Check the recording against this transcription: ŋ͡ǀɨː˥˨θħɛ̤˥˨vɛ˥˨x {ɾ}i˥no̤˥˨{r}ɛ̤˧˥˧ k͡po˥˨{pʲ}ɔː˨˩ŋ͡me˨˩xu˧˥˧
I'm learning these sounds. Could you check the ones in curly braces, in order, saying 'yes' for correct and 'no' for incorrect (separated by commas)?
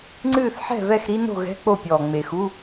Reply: yes, no, yes